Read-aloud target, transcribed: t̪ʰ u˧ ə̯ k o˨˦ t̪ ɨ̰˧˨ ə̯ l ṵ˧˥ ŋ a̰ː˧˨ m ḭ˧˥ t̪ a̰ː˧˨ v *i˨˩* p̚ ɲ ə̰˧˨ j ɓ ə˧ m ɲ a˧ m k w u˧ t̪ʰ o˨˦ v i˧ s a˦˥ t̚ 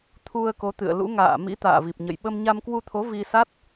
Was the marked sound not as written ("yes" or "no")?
no